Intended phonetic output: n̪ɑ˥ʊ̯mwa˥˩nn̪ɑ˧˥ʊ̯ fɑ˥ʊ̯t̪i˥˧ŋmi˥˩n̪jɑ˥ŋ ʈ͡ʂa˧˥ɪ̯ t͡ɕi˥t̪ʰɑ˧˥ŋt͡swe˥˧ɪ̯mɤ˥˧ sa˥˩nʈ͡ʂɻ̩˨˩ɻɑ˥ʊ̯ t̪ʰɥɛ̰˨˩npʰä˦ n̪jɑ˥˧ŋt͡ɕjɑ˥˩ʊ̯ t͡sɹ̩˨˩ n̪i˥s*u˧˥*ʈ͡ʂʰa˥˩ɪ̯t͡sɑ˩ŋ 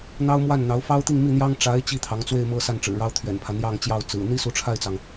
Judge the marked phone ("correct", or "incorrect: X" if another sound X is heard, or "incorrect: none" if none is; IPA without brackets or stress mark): correct